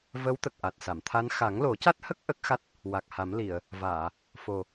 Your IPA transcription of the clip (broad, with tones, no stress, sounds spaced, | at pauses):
v ə˧˥ w t̪ ə˨˩ k̚ ʔ a˨˩ t̚ s a˨˩˨ m t̪ʰ a˧˥ n x a˨˩˦ ŋ l o˨˩˦ c a˦˥ t̚ h ə˦˥ k̚ ʔ ə˦˥ k̚ x a˦˥ t̚ | w a˨˩ k̚ h a˨˩˦ m l i˨˩˨ ə̯ | v aː˨˩˨ | f o˨˩